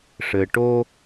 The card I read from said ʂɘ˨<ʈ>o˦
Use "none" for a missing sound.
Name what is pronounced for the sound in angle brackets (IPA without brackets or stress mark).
ʈ